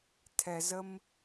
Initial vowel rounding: unrounded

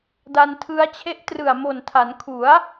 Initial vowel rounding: unrounded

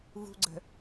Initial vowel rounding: rounded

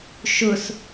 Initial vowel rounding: rounded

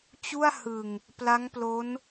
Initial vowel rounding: rounded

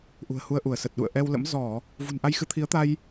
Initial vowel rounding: rounded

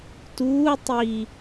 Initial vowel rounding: rounded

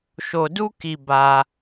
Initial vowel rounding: rounded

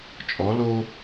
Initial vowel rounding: rounded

